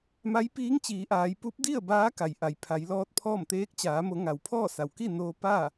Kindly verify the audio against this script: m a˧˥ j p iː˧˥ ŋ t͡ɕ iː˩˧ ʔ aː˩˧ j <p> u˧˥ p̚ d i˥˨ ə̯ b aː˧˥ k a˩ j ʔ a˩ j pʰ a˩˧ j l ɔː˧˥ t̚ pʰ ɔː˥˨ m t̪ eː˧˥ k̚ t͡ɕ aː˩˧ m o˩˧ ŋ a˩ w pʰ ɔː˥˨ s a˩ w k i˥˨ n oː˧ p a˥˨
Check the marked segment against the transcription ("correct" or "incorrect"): correct